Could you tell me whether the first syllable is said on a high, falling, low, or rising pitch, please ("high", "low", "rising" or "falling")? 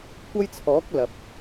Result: high